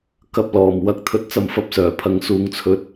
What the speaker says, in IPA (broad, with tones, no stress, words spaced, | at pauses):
kɐ˧p̚lɔː˨˩m wɐ˨˥k̚t̪ʰɵ˧t̚ t͡sɐ˧mfɐ˧p̚sœː˨˩pʰɐ˨˥ŋ suː˨ŋt͡sʰɵ˨˥t̚